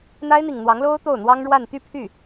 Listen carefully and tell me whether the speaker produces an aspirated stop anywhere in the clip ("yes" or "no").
yes